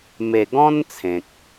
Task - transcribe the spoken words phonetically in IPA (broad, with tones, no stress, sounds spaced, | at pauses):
m e˨˩ ɡ ɔ̃˦ n t͡sʰ ẽ˨ k̚